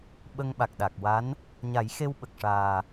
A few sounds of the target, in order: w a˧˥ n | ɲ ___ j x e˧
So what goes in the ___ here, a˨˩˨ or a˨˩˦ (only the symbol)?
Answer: a˨˩˦